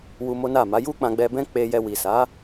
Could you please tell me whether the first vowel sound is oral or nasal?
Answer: oral